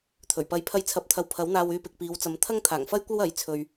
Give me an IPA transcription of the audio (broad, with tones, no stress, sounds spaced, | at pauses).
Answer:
t̪ʰ ɵ˨˩ ɥ p ɐ˧ j pʰ ɐ˧ j t͡sʰ ɐ˨˥ p̚ t̪ʰ ɐ˨ w pʰ ɐ˨˥ w n̪ aː˧ w yː˧ p ɪ˨ k̚ p iː˨˧ w t͡s ɐ˨˧ m t̪ʰ ɐ˥ ŋ t̪ʰ aː˨˩ ŋ f ɐ˥ j kʷ ɐ˥ w ɐ˨˥ j t͡sʰ ɵ˨ ɥ